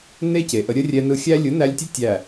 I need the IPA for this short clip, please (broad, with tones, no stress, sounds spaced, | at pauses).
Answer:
n e˦ c e˨ ʔ ə˧ ɾʲ ə˦ rʲ ɛ˧ n ɯ˧ xʲ æ˦ lʲ ɯ˨˦ n æ˧ lʲ tʲ o˦ tʲ æ˦˨